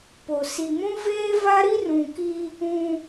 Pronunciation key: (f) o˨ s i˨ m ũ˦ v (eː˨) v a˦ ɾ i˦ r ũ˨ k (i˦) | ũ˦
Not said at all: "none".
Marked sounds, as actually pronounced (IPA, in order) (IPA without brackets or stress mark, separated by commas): p, eː˦, i˦